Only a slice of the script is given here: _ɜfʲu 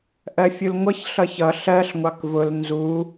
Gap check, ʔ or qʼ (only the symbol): ʔ